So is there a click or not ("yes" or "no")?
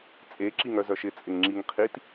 yes